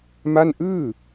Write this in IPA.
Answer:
m a˥˩ n ʔ ɯː˥˩

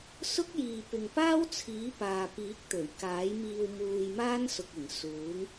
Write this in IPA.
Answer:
s ʊ˥ k̚ j iː˨ p ɪ˨ ŋ p aː˥ w t͡sʰ iː˨˥ p aː˨ p iː˨˥ k̚ t̪ ɵ˨˩ ɥ k aː˨˥ j m iː˧ w m uː˧ j m aː˥ n s ʊ˨ k̚ ɪ˨˩ ŋ s uː˨˥ ŋ

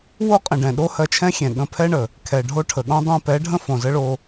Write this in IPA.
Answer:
w o˦ qʼ ə̃˨ ɖ ɛ̃˨ ɗ o˦ h ɜ˧ t͡ʃʰ ɛ̃˦ xʲ ɛ̃˨ ɠ ə̃˧ pʰ ɛ˦ ɳ ə˨ | kʰ ɛ˨ ɖʱ o˧ ʈʰ ə˨ ɠ õ˧ dˤ ɛ̃˧ p ɛ˨˦ ɖʱ ə̃˦ f õ˨ z ə˦ ɭ o˧

